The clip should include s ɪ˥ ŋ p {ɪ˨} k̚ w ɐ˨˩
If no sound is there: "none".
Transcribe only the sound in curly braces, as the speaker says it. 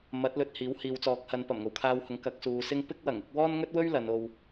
ɪ˥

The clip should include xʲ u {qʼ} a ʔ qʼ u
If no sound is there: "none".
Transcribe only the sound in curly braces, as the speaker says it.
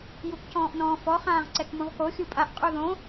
pʼ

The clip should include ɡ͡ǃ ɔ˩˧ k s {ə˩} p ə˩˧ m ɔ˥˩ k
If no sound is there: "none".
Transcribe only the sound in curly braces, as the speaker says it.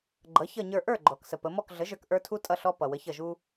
ə˩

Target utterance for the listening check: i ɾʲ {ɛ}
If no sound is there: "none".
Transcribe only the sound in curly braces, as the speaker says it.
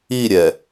ɛ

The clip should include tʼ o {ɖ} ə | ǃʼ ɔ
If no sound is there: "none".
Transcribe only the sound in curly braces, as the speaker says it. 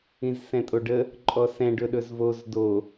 ɖ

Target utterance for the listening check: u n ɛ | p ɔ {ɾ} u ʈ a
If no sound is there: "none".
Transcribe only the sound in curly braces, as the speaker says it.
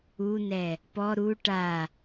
ɾ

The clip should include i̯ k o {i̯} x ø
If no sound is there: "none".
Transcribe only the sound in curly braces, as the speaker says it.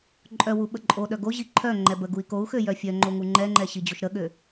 u̯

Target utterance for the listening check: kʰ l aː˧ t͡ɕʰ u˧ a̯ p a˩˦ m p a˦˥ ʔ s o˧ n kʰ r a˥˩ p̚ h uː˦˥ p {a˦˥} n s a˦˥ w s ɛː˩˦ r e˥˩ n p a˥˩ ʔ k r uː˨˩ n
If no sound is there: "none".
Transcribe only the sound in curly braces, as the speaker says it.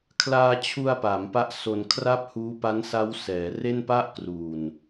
a˦˥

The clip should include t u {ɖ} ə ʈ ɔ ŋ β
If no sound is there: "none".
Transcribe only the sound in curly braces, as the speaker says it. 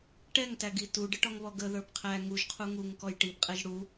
ɖ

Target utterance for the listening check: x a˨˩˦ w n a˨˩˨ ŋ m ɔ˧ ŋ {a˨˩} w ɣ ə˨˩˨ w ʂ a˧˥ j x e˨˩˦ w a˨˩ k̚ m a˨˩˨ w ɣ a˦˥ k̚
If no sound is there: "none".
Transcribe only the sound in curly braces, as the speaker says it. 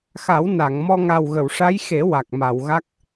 a˨˩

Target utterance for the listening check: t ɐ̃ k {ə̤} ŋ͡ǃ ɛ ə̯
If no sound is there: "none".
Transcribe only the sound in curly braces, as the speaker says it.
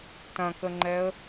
ə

